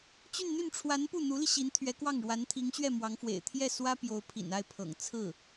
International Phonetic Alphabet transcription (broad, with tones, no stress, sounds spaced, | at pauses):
t͡ɕ y˥˧ n n̪ y˥˩ n ʈ͡ʂʰ w a˧˥ n p u˥˩ n̪ u˧˥ l i˧ ɕ i˧˥ n t̪ʰ ɥ ɛ˧˥ k w ɑ˥˩ ŋ ɻ w a˧˥ n t̪ʰ i˧˥ ŋ ɕ ɥ ɛ˥˩ m w ɑ˧˥ ŋ f w ḛ˨˩ ɪ̯ t̪ʰ j ɛ˥˩ s w ä˥ p j o˧˥ ʊ̯ pʰ ḭ˨˩ n a˥˩ ɪ̯ pʰ ɤ̰˨˩ ŋ t͡sʰ ɹ̩˥˩